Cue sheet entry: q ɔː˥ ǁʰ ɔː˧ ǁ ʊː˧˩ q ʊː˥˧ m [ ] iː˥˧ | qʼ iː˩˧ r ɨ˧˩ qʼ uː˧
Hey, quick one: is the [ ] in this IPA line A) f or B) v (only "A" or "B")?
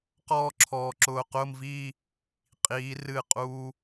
B